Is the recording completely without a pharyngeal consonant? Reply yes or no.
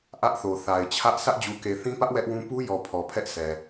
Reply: yes